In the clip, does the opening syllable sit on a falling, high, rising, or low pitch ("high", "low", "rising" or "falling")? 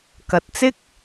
low